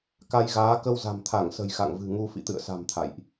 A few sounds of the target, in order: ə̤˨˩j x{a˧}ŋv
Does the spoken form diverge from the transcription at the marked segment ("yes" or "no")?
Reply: yes